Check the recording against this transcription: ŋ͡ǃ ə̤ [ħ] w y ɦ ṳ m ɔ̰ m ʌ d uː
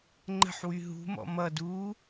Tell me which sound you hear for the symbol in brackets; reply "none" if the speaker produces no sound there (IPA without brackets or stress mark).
ħ